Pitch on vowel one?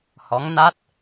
rising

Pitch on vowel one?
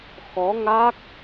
rising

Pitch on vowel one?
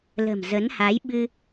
low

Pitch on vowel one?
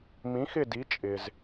rising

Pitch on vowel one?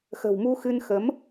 low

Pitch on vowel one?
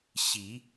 rising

